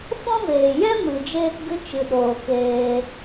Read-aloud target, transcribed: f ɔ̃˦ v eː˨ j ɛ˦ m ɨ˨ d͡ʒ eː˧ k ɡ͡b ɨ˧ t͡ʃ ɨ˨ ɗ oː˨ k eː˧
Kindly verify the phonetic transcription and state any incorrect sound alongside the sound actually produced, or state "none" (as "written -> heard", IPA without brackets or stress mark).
ɡ͡b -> ɡ